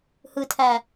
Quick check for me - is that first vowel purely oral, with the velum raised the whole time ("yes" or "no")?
yes